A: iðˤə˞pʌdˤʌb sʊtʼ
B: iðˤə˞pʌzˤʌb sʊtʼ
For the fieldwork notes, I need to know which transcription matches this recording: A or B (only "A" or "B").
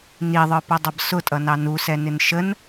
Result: A